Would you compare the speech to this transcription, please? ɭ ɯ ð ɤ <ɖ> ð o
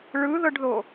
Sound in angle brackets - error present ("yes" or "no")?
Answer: no